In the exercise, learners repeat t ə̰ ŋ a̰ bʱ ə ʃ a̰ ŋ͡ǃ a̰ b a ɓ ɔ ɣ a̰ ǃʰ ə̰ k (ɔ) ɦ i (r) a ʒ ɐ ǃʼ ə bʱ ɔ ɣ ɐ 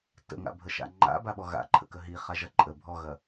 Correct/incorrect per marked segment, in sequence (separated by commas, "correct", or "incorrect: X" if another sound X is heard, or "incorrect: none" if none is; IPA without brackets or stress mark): incorrect: ə, incorrect: χ